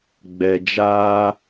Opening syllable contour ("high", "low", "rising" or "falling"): low